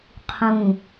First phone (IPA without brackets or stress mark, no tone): qʰ